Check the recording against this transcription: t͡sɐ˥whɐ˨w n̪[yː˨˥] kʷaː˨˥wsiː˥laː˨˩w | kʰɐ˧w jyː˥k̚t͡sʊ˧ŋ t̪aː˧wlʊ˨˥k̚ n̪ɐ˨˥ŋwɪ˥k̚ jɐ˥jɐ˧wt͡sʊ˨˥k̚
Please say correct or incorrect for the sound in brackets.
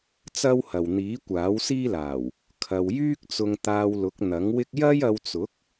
incorrect: iː˨˥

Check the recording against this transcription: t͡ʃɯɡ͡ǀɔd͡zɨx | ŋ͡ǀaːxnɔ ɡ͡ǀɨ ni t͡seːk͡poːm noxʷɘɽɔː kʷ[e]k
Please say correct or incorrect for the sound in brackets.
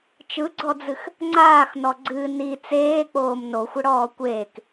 incorrect: eː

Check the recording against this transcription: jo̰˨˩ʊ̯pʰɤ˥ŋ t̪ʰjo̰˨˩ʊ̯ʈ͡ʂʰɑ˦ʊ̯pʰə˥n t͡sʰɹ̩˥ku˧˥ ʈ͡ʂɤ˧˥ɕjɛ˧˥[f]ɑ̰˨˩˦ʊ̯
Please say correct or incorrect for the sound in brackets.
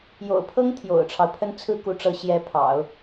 incorrect: pʰ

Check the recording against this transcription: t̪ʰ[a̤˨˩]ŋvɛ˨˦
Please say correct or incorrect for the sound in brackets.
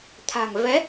correct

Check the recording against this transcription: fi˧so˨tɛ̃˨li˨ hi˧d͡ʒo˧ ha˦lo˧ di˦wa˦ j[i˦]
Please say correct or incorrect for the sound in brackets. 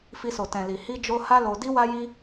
correct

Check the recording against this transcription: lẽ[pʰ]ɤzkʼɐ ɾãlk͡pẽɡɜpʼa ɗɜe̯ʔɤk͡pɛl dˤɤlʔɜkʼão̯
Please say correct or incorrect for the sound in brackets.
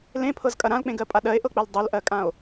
correct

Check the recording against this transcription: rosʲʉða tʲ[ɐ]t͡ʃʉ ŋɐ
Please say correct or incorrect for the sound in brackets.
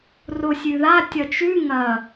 correct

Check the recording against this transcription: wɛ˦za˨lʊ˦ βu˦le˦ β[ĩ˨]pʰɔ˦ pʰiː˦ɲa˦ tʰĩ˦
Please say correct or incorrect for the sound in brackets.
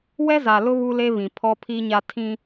correct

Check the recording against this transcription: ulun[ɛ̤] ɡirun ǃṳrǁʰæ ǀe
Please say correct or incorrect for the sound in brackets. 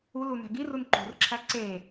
incorrect: æ̤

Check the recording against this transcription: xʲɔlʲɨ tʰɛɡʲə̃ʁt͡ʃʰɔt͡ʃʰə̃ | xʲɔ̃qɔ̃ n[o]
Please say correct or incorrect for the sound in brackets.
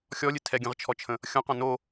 correct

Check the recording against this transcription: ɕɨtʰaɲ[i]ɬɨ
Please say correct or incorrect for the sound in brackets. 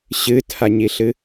correct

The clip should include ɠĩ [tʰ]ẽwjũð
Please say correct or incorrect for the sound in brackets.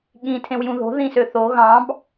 correct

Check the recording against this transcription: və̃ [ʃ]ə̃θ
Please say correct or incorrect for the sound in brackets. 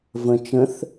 incorrect: t͡ʃ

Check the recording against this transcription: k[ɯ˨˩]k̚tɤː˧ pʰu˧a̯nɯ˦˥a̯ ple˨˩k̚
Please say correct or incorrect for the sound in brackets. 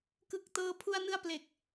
correct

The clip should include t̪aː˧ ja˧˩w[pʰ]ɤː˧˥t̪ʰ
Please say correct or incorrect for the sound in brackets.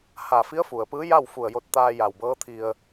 incorrect: b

